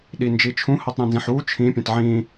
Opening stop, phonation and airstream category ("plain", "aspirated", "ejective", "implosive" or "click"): implosive